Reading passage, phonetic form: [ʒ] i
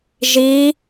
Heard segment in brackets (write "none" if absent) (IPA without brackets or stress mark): ʒ